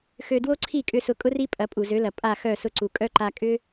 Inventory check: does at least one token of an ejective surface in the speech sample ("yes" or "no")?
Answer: yes